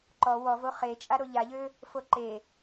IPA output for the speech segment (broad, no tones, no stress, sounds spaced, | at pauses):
ǃ ɔ w ɔ v o χ e t͡ʃʼ a ɾ o ʎ a ʎ ø | f o ǃ e